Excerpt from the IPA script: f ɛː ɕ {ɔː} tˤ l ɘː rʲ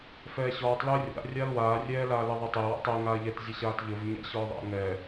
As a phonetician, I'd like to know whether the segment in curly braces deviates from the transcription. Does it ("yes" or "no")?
no